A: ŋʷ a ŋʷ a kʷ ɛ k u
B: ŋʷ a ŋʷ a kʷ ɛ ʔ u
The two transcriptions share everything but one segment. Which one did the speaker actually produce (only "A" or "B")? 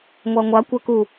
A